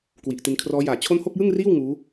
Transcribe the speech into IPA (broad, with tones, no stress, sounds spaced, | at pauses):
k w i˨˩ ʔ t i˧ n kʰ r ɔː˦˥ j aː˨˩ t͡ɕʰ o˥˩ n h o˥˩ k̚ j ɯ˥˩ ŋ r iː˥˩ w ŋ uː˦˥